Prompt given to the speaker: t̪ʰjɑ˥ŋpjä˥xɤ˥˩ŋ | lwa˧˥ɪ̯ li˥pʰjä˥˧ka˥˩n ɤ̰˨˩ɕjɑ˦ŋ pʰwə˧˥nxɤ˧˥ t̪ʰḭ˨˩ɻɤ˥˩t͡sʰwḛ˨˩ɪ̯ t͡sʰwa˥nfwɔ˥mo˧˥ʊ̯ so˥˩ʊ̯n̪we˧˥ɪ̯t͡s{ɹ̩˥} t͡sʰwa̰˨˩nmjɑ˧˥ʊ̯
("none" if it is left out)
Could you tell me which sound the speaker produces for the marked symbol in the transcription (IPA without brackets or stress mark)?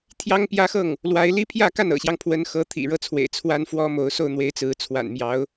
ɹ̩˧˥